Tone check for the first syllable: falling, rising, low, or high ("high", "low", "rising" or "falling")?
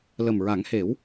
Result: low